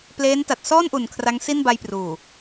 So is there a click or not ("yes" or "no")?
no